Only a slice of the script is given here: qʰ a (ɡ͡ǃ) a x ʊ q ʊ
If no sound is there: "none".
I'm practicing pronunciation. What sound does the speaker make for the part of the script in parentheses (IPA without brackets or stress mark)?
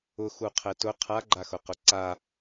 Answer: ɡ͡ǃ